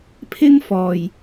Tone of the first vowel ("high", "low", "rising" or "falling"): high